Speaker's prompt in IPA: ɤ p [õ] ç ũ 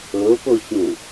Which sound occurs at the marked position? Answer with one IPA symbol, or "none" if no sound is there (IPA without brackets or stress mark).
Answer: o